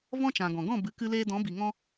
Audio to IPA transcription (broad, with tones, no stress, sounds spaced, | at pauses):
v ɔ̃˦ t͡ʃ ã˨ ɡ ɔ̃˨ ɡ ɔ̃˦˨ b ɨ˨˦ k ɨ˧ l eː˧ d ɔ̃˨˦ b i˨ ŋ ɔ̃˧